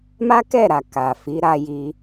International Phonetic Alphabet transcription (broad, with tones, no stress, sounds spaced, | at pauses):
m a˦ k ɛ˦˨ ɾ a˨ k a˨ f i˨˦ ɾ a˧ j i˧